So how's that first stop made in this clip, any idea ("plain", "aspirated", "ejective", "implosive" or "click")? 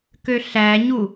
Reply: plain